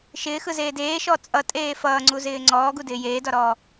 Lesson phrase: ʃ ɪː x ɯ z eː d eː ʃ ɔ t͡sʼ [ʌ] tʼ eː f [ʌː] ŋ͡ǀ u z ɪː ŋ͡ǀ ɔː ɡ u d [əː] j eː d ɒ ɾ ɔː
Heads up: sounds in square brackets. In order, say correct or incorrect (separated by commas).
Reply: correct, correct, incorrect